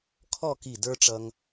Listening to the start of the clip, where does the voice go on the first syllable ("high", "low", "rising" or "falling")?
falling